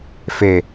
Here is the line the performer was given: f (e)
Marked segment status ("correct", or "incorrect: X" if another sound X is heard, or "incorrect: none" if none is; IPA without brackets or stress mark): correct